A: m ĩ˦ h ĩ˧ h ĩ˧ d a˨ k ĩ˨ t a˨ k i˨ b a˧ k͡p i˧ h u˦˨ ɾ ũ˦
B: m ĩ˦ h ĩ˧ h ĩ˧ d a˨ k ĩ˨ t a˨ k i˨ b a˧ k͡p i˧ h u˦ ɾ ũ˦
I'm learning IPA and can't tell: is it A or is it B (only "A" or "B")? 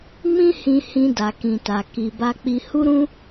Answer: B